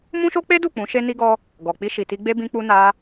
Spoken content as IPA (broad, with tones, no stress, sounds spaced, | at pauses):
m ũ˦ ʃ o˦ k͡p e˦ d u˦˨ k͡p ũ˨˦ ʃ e˦ n i˦ ɡ ɔ˦ | ɡ ɔ˨ k͡p i˧ ʃ i˨ t i˧ ɡ͡b e˦ b ĩ˧ k͡p u˧ n a˧